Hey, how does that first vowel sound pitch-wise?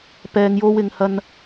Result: low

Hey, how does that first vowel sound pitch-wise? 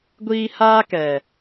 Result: high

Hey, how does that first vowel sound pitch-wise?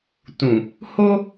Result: low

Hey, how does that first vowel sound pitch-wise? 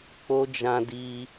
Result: high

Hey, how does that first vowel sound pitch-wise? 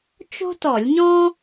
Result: high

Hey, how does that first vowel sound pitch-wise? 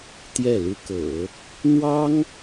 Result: falling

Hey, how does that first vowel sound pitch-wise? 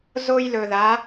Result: high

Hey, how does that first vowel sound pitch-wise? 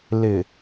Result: low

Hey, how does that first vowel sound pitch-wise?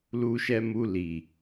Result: low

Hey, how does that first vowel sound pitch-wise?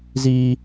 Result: high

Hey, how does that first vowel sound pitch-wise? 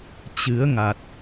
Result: rising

